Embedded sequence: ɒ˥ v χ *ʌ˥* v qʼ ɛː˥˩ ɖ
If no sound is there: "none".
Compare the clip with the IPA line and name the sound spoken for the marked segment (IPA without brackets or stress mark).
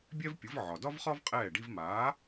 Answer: ɒ˥